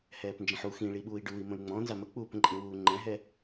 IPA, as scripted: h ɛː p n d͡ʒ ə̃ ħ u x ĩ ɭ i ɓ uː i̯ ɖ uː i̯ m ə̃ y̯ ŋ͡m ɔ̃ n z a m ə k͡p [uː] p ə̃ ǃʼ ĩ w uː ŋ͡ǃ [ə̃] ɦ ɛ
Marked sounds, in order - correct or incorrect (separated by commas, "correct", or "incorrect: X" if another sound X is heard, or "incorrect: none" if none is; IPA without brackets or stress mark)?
correct, incorrect: ɛ̃